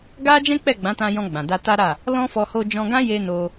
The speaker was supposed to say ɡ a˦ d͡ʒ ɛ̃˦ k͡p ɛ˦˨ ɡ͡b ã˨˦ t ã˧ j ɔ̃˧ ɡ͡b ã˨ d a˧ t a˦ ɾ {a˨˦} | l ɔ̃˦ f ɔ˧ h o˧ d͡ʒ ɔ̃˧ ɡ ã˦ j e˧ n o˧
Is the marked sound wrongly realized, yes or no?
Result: yes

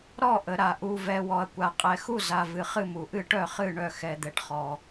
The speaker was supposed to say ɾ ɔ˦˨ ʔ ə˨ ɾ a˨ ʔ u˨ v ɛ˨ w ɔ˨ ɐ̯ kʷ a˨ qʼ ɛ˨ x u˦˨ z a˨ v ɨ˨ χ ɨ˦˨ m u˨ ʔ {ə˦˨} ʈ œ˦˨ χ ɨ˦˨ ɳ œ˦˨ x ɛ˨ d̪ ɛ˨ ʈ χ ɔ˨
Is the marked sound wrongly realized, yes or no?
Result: yes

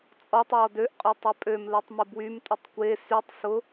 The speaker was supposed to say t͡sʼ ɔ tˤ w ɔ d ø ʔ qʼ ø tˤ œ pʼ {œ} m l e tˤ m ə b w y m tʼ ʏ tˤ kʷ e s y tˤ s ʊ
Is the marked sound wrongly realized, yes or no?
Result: yes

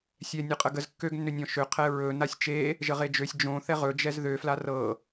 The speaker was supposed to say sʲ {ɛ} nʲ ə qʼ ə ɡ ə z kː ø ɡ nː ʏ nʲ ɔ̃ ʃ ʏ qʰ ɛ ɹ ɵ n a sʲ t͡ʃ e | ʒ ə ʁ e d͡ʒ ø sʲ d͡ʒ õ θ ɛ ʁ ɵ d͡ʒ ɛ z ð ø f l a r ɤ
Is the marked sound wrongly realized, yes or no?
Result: no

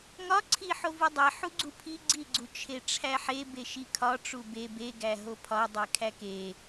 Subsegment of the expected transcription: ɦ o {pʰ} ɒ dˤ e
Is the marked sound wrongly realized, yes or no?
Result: no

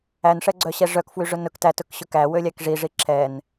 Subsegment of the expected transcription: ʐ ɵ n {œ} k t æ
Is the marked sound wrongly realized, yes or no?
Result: yes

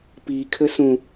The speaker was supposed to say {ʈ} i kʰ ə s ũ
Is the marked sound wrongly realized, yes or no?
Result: yes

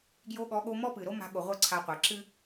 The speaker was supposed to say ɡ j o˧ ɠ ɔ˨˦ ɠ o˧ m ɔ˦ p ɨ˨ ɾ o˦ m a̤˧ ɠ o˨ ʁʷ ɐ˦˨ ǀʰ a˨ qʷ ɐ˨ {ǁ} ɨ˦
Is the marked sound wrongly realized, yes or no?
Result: no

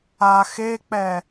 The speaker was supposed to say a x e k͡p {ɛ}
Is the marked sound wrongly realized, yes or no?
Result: no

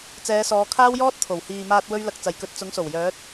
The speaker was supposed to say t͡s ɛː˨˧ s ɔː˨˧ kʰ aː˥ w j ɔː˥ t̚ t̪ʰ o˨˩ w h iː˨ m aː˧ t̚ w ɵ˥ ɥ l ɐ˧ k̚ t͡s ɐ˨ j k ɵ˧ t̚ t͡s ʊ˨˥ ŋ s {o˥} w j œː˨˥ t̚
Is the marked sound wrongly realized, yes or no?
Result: yes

